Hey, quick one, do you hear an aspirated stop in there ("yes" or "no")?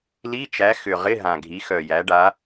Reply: no